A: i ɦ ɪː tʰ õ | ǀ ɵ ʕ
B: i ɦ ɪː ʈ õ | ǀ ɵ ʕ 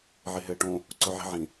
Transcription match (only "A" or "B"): B